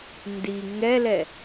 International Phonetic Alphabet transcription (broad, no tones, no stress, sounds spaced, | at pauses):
n d i ŋ ɛ l ɛ